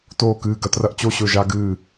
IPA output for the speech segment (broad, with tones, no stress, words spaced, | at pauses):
toː˧˩kɨː˧˩ɡɐ˧ trɐ˧ʔt͡ɕo˧˩ɕɵ˧˩ ʒa˧ɡɨː˧˩